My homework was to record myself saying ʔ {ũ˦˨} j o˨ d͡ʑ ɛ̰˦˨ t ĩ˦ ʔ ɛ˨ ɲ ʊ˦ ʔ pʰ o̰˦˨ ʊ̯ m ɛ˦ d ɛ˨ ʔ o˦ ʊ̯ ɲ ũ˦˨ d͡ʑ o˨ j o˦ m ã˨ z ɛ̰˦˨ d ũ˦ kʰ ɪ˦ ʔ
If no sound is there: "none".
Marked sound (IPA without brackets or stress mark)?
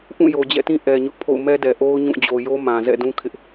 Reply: ũ˦˨